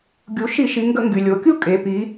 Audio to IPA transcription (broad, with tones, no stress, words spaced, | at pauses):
ɡʲu˩˧ʃi˧˩˧ʃi˩˧ŋɡə˧˩˧ ŋɡy˩lʲo˩˧kʲu˥˧ kʼe˩˧ pi˩˧